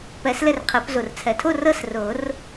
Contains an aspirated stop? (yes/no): yes